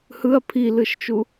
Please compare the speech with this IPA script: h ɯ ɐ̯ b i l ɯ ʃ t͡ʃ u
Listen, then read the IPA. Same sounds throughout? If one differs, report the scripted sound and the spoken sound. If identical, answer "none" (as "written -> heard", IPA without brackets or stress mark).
b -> pʰ